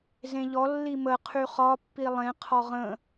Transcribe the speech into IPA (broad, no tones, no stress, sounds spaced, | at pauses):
z ẽ ʎ ɔ lː i m ə qʰ y χ ɒ pː i lˠ ẽ qʰ ɒ ʁ ə̃